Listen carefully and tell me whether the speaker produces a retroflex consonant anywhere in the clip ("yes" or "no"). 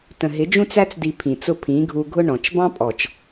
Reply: yes